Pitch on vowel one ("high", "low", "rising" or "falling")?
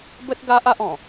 high